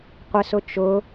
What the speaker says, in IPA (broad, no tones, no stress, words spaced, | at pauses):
qʷɪsʊ t͡ʃʊ